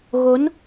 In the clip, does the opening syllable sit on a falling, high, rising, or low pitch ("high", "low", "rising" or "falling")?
rising